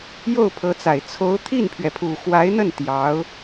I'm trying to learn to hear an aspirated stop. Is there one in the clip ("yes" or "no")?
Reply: yes